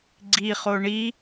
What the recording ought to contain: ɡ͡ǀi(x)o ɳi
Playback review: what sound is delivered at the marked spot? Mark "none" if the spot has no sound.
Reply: χ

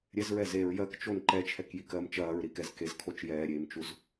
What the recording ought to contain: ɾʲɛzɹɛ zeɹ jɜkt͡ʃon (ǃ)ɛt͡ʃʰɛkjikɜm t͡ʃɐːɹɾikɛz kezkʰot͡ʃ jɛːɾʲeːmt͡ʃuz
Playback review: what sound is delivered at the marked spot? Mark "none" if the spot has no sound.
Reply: ǃ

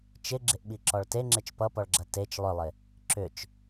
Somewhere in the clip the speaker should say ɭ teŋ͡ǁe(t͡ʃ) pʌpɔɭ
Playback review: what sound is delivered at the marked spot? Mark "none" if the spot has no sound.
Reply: t͡ʃ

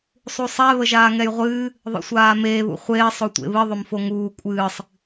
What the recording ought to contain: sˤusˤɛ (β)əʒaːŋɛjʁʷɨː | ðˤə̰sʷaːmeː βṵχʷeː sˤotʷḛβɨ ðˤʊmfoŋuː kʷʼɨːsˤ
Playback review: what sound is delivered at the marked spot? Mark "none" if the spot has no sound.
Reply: β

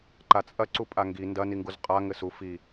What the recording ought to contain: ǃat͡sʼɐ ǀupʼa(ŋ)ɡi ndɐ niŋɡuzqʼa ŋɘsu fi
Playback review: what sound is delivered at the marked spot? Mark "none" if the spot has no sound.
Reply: ŋ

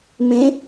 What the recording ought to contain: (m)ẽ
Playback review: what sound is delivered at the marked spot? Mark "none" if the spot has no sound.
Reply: m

